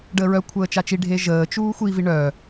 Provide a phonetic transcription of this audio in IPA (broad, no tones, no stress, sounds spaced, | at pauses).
ɖ əː ɹ œ kʷʰ əː t͡ʃ a t͡ʃ i ɖʱ e ʒ əː t͡ʃ uː xʷ i v i ɳ œː